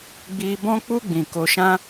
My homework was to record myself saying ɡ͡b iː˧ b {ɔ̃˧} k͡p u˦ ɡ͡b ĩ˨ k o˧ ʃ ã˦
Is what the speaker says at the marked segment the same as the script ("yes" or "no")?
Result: no